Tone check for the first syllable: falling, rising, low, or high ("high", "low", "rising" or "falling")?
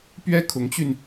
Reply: high